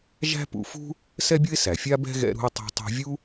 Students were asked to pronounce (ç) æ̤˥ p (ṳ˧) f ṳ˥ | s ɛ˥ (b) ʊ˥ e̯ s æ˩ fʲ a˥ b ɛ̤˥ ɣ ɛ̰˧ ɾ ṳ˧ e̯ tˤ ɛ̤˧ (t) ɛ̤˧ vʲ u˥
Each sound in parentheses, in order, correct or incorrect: incorrect, incorrect, incorrect, incorrect

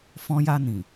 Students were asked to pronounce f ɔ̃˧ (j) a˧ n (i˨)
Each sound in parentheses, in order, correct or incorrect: correct, incorrect

